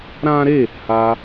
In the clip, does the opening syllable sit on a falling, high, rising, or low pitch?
high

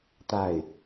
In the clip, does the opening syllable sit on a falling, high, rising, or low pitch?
falling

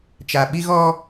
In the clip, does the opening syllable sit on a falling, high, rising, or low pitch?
low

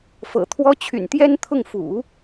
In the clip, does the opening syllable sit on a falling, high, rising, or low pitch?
low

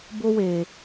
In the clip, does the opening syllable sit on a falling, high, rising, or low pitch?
high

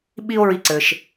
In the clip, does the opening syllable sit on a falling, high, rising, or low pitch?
high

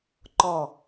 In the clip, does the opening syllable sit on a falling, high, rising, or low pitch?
low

